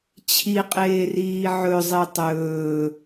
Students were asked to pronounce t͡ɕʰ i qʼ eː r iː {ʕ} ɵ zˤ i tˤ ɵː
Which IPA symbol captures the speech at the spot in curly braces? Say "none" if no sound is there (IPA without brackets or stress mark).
ʕ